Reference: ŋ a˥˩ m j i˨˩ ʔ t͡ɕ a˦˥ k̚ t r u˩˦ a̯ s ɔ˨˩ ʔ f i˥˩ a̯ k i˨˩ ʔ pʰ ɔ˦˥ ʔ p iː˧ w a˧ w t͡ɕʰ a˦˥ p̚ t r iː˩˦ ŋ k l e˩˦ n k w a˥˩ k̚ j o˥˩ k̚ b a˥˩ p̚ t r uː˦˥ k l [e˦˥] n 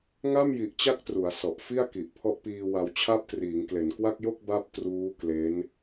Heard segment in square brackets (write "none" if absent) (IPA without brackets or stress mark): e˦˥